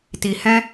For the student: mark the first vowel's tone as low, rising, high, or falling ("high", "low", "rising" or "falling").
low